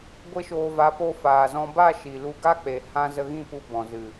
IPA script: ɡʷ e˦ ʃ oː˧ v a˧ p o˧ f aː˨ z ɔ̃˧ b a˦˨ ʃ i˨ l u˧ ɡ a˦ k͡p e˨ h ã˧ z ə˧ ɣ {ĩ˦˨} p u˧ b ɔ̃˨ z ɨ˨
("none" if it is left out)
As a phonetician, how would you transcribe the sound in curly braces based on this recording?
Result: ĩ˦˨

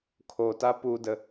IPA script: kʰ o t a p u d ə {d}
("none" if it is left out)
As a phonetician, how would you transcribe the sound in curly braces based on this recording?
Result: none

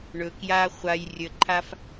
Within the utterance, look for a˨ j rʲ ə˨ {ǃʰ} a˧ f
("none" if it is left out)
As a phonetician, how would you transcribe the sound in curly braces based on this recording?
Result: ǃʰ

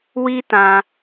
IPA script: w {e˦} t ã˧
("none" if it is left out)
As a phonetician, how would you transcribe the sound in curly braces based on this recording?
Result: i˦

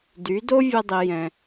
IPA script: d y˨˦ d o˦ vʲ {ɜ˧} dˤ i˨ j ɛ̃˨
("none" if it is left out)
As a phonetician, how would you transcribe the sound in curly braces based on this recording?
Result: ɛ˧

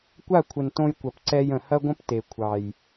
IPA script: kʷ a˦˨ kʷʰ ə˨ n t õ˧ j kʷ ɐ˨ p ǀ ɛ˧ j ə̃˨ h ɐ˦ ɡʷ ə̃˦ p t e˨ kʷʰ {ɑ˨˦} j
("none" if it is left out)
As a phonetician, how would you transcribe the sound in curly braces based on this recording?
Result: ɑ˨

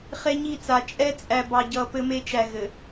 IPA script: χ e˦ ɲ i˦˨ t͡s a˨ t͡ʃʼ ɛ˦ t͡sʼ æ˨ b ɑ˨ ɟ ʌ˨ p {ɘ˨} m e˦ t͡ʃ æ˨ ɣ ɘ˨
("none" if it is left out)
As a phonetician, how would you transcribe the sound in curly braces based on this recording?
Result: ɘ˦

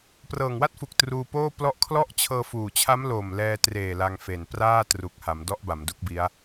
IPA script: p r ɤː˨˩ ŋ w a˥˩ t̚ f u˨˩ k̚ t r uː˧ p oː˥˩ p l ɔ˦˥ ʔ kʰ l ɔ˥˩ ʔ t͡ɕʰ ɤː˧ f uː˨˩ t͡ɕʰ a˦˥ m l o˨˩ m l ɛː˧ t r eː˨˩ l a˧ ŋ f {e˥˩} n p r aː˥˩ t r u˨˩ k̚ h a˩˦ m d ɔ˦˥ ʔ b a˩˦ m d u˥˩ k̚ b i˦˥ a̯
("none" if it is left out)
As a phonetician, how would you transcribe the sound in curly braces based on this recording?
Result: e˨˩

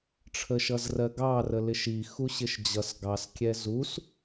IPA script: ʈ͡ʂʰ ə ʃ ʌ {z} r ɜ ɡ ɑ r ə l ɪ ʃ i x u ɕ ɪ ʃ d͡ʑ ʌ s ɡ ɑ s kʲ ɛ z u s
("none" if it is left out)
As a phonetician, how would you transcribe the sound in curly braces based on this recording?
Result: z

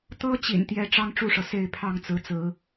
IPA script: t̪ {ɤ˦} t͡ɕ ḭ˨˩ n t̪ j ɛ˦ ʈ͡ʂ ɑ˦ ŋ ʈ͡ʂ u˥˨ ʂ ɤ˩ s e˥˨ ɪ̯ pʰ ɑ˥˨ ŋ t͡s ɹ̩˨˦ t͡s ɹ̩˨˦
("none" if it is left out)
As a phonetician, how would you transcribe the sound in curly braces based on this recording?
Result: ɤ˦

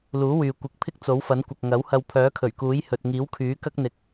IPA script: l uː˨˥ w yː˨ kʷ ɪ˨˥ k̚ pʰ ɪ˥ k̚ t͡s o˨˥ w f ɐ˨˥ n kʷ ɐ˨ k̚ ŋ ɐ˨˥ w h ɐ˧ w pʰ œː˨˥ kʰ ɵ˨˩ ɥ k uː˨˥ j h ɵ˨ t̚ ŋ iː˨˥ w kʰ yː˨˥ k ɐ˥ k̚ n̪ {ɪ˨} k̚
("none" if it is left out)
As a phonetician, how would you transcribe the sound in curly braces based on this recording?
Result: ɪ˨˥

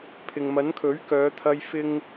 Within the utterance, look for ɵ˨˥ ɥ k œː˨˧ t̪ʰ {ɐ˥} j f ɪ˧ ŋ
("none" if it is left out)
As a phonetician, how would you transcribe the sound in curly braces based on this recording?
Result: ɐ˧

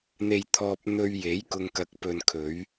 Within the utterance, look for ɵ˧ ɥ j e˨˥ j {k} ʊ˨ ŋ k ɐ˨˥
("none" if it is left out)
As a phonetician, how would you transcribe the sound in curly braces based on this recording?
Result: k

